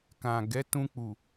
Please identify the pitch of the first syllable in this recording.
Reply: low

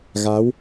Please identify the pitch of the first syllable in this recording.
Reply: rising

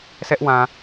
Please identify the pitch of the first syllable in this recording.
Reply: high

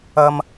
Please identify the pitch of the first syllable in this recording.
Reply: high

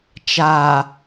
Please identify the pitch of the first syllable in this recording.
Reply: low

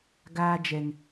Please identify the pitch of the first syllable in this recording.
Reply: high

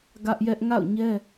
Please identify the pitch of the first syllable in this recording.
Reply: high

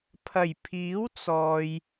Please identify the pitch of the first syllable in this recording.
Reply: low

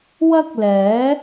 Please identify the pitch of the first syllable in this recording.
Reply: high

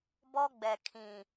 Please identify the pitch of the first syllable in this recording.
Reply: high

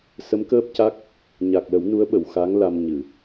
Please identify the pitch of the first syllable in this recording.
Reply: rising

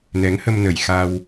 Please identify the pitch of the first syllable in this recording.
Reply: rising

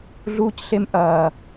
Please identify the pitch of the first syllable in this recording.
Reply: high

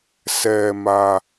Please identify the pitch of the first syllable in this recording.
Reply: low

